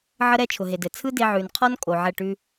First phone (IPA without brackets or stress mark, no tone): ʕ